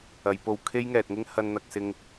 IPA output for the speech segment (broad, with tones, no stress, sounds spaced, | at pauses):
ɐ˨˧ j p o˧ w kʰ e˥ j ŋ ɛː˨ t̚ ŋ ɪ˥ ŋ h ɐ˧ n n̪ ɐ˨ k̚ s ɪ˧ ŋ